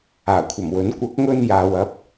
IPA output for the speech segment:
aː˨˩ kʷʰ ɐ˨˩ m w ɵ˨˥ n kʷ ɐ˨˥ k̚ ŋ ɵ˧ n j aː˨ w ɐ˨˥ p̚

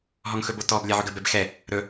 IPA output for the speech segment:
ɦ ɔ ŋ x ɵ b o t ɔ b lʲ a ʕ ɵ ɡ ə b ɛ b x ɛ | ɾ ɵ

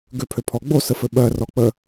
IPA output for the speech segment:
ɡ ø pʰ ø pʰ ɔ ɡ͡b o s ə f ɘ ɓ ɜ r ɔ k͡p ə

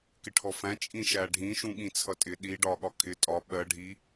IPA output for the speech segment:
k ɪ ʈʰ ɔ f æ̃ t͡ʃʼ ĩ ʃ æ ɖʱ ĩ ʃ ũ ɠ ĩ t͡sʰ ʌ tʼ ɪ ɗ i ɖ ɒ ɠ ɒ kʰ ɪ tʼ ɒ ɓ ɜ ɖʱ i

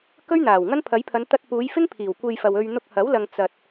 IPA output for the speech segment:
k ɵ˥ ɥ n̪ aː˨˩ w ŋ ɐ˥ n pʰ ɐ˨˥ j pʰ ɐ˨˧ n t̪ ɐ˧ t̚ p uː˨˧ j f ɪ˥ ŋ pʰ iː˨˩ w kʷ e˧ j f ɐ˨ w ɵ˧ ɥ n̪ ʊ˧ k̚ h ɐ˨˥ w l ɐ˨ ŋ t͡s ɐ˨ t̚

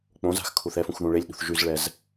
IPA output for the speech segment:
k͡p õ z a̤ x kʰ u θ ɛ f ũ x ð ũ ɭ e lʲ ɗ ṳ θ ʒ y z ɭ ɛ z

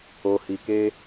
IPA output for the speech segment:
o˨ h i˨ k e˧

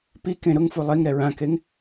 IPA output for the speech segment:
p i k ẽ ɾ ʊ ŋ f u lˠ e ŋ ɾ ɛ ɹ ã k e ŋ

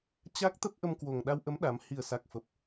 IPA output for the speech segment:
t͡ɕ a˦˥ k̚ t̪ ə˦˥ p̚ ʔ ə˧ m k w o˨˩ ŋ ɗ a˧ w ʔ ə˨˦ m ɗ a˨˦ m h i˨˩ ə̯ s a˨˩ k̚ f ə˨˩ p̚

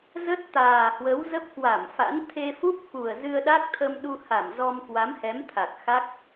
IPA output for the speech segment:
z ə˦˥ t̚ t̪ aː˨˩ h w ə˨˦ w z ə˦˥ p̚ k w a˧˩ m f a̰˧˥ n t̪ʰ e˧ f u˦˥ p̚ k u˨˩ ə̯ z ɨ˧ ə̯ ɗ a˦˥ k̚ t̪ʰ ə˧ m ɗ u˧ h a˧˩ m z ɔ˧ m k w a˨˦ m h ɛ˨˦ m t̪ʰ a˨˩ k̚ x a˦˥ k̚

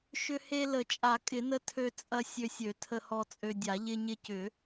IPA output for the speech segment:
ʃ ʏ˧ h e˧ l ə˨˩˦ t͡ʃʼ a˨˩˦ kʼ ɪ˨˩˦ n ə˧ tʰ ø˧ t͡sʼ ɐ˧ sʲ ø˧ sʲ ø˨˩˦ tʰ ə˧ h ɔ˧ t͡sʼ ø˧ dʲ a˨˩˦ ʎ ɪ˧ ɲ ɪ˧ c ʏ˨˩˦

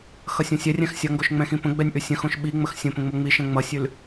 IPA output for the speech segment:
x ʌ sʲ õ sʲ ɛ rʲ ɛ̃ x sʲ ʌ ŋ ɡ o ʃ ŋ͡m ɛ̃ x ĩ p ə̃ ɡ͡b ɛ nʲ ʔ ʉ sʲ ə̃ x õ ʃ ɓ i ŋ͡m ə x sʲ ə̃ p ə̃ ŋ͡m o ŋ͡m i ʃ ɛ̃ ŋ͡m ʌ sʲ ʉ l

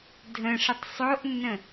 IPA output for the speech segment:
dʱ ə̃ ʂ ə tˤ sˤ o ʔ nː ə̃

